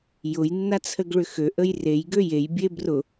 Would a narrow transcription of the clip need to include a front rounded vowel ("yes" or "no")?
yes